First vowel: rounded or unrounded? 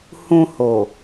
rounded